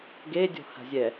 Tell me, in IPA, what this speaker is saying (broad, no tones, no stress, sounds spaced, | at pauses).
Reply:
ɡ e dʲ ɔ̤ h a̤ zʲ ɛ